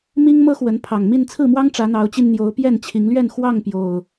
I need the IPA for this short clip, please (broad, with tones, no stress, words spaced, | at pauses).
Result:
mi˦ŋmɤ˦xwə˨˦npʰɑ˨˩ŋ mi˥˨nt͡sʰɹ̩˥˨mwɑ˦ŋ ʈ͡ʂä˨˦n̪ɑ˨˦ʊ̯t͡ɕi˧n n̪jo˨˦ʊ̯pjɛ˥˨nt͡ɕʰi˨˦ŋlɥɛ˥˨n xwɑ˥˨ŋ pjo˨˩ʊ̯